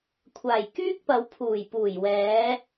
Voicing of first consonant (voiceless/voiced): voiceless